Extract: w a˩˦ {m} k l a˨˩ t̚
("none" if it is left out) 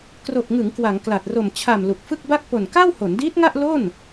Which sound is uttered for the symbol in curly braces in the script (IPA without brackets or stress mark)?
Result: ŋ